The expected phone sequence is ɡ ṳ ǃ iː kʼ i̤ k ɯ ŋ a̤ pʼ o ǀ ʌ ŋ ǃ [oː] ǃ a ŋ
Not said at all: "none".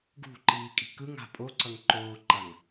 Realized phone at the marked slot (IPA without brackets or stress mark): oː